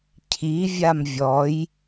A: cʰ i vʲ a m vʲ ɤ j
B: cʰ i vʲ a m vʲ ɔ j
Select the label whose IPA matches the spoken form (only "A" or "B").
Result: B